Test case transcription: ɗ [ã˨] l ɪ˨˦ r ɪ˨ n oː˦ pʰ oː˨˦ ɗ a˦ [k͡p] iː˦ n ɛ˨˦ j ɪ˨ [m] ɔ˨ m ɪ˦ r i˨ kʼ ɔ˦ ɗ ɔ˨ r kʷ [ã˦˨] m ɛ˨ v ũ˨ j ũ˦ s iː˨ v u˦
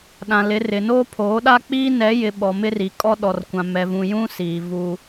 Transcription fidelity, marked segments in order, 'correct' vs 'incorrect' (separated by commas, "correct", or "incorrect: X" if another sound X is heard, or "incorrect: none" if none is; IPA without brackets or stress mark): correct, correct, incorrect: ɓ, incorrect: ã˨